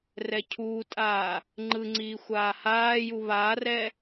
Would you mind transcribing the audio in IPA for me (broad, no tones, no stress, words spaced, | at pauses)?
rɛcʰuːtʼaː | ŋ͡ǃɯŋ͡ǀiː xʷaːhaːju βaːrɛ